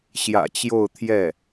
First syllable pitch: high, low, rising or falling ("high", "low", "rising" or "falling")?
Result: low